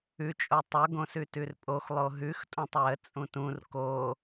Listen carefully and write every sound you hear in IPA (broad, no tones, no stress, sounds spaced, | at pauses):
ʉ t͡ʃʼ o tˤ o ɡ õ s ʉ t ʉ r pʼ o x lˠ o ɦ ʉ x tʼ õ tˤ w ə t͡sʼ ũ t ũ r k o